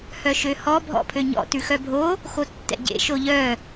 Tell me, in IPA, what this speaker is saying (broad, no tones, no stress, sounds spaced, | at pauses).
h œ ʃ ø h ɔ bʱ ɔ̰ pʰ ø ɲ ɔ̰ t ʉ x œ bʱ o | x o tː ɛ̰ ɟ ḛ ʃ o ʎ œ